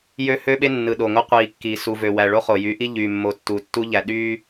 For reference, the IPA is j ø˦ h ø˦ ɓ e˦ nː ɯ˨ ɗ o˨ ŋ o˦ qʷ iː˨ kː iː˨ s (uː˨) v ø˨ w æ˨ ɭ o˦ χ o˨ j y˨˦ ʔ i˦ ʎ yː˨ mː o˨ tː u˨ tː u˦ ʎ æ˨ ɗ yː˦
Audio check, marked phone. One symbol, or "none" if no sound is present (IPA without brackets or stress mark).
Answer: u˨